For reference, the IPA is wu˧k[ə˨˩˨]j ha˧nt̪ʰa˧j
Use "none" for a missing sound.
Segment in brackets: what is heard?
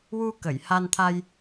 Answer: ə˨˩˨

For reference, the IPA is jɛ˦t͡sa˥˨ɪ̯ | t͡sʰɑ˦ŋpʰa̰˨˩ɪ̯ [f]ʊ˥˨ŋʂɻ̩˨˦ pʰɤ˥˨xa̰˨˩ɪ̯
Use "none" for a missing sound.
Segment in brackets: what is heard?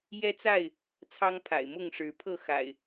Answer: m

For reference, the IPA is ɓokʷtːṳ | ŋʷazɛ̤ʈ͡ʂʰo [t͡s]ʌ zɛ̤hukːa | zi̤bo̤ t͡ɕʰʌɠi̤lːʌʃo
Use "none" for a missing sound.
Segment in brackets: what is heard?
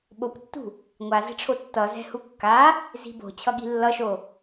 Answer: tː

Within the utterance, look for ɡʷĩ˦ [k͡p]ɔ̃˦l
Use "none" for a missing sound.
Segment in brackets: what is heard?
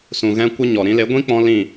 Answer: k͡p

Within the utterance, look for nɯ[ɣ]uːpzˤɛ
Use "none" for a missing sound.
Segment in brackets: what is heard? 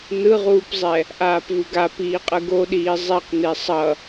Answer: ʁ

